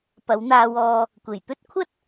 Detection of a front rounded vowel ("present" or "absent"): absent